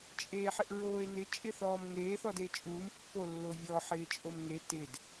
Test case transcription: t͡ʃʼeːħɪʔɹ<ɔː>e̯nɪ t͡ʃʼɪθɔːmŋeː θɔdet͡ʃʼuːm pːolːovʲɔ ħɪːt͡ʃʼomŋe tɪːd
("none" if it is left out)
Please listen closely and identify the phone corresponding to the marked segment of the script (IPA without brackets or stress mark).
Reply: oː